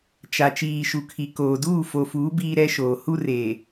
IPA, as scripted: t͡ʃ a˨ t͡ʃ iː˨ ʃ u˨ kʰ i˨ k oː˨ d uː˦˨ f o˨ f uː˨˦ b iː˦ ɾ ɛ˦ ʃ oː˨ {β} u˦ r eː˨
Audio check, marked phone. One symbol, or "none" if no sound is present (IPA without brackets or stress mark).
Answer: h